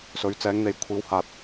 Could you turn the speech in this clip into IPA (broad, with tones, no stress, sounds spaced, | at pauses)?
s ɵ˨˧ ɥ t͡s ɛː˨˧ ŋ n̪ e˨ j kʷʰ iː˨˧ w h aː˨ t̚